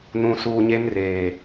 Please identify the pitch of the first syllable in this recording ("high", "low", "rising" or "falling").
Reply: low